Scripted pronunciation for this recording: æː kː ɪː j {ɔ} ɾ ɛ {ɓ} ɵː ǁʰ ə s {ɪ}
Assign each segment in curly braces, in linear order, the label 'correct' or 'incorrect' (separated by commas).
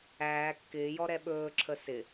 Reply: correct, correct, correct